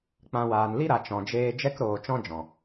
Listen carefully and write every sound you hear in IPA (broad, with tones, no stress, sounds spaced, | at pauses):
k͡p ã˨ w aː˨ n l i˦ ɾ a˨ t͡ʃ ɔ̃˨ d͡ʒ eː˧ d͡ʒ ɛ˦ k ɾ oː˧ t͡ʃ ɔ̃˦ d͡ʒ ɔ̃˨